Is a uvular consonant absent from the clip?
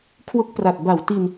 yes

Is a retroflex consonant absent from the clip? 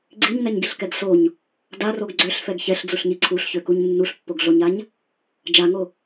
yes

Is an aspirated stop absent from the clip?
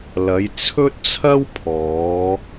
no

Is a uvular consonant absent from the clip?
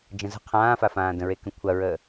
no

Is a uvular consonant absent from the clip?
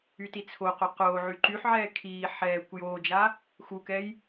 no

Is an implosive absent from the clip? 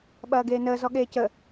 no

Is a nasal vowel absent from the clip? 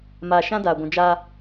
no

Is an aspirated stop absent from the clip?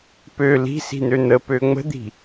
yes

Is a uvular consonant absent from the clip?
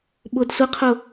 no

